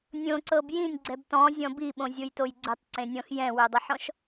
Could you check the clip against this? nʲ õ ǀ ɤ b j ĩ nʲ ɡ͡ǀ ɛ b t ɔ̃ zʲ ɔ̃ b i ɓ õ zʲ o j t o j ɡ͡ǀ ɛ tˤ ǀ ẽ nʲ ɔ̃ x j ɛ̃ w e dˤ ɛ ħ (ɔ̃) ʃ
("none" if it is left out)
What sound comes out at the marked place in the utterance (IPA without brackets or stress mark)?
ɔ̃